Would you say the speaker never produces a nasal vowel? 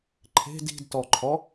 yes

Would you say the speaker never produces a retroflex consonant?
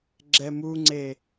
yes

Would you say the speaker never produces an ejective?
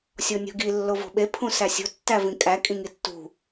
no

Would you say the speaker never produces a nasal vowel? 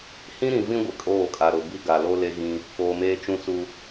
no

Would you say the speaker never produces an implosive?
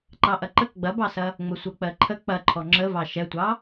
yes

